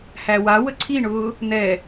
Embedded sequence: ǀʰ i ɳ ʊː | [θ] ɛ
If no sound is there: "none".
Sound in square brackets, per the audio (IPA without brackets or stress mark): n̪